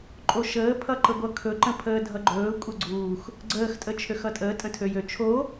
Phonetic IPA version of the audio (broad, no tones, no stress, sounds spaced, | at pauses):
ǃʼ o ʃ əː pʰ ʌ ǃ ə ɡʷ ʌ kʰ ɵ ǃ ə̃ pʰ əː dʱ ʌ ɡ͡ǃ ɵː kʷʼ ə ɡ͡ǀ uː x | ɡ͡ǀ əː x tʼ ə t͡ʃʰ ø x ʌ tʼ əː tʼ ə̃ tʰ ø j ø t͡ʃʰ o